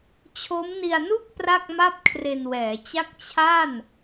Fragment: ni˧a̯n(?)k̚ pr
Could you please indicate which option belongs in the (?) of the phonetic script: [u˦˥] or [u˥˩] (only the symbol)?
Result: u˥˩